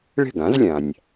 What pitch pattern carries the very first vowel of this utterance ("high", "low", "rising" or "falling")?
falling